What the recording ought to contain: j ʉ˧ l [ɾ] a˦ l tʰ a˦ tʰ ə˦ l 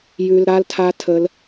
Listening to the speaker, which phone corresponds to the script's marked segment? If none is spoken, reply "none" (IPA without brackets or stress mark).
ɾ